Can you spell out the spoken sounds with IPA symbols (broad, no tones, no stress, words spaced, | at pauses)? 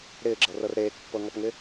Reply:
ɾɪːɡ͡ǁɤrɤr ɾeːkpːɤŋɔpŋɪ